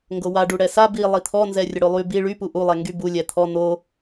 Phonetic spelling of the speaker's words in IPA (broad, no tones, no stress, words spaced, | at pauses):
ŋɡowa ɖuɽɛsa bi lˠit̪ʰɔnzɛ rʲəɽolˠy bi ɭypu ʔulˠɛ ŋɡybu lʲɛt̪ʰɔ n̪o